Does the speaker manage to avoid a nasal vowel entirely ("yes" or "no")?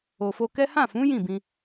no